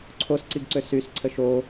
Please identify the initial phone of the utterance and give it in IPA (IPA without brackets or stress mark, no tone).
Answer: ǀʰ